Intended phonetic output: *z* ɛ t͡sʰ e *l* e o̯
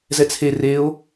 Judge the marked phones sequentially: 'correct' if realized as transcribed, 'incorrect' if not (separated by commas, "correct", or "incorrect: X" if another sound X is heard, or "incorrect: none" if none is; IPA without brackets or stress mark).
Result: correct, incorrect: r